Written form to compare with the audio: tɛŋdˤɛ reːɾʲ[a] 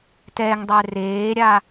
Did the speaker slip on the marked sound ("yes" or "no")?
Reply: no